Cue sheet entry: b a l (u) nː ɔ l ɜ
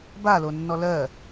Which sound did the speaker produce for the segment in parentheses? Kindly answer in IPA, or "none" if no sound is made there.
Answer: o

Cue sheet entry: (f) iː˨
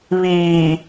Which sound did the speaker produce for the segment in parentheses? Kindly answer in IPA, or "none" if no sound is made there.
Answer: β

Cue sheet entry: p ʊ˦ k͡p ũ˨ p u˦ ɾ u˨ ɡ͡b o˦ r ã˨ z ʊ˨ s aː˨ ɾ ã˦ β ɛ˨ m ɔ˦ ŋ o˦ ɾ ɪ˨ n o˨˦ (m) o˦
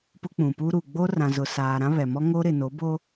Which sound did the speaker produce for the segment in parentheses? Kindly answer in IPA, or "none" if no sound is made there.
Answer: b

